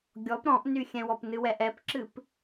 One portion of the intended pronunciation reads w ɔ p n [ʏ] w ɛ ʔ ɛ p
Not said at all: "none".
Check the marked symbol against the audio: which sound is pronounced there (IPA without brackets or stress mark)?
ɨ